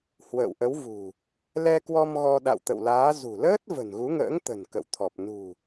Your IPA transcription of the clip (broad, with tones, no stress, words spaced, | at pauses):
hwə̰ː˧˨wʔə˨˦wvṳ˨˩ | lɛ˧kwɔ˧m ɣɔ˧ ɗa̰˧˨wt̪ə̰˧˨wlaː˨˦ zṳ˨˩ləː˦˥t̚ və̤˨˩nɣu˨˦ŋə̰ː˧˥ŋt̪ə̤˨˩n kə̰˧˨wt̪ʰɔ˨˩p̚ nṳ˨˩